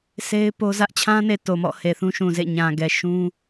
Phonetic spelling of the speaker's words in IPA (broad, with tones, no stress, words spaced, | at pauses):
se˦ɪ̯po˦zä˦ʔ t͡ɕʰã˦ne˨ to˨mɔ̰˦˨ he˨θũ˦ʃũ˨zḛ˦˨ ɲã˨ɡɛ˨ ʃũ˦